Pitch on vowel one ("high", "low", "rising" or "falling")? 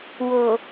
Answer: low